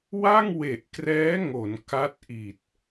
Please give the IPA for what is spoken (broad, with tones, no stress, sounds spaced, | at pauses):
w a˥˩ ŋ w e˨˩ ʔ k r ɛː˦˥ ŋ o˩˦ n k a˦˥ t̚ ʔ i˨˩ t̚